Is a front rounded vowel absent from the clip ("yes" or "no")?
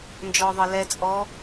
yes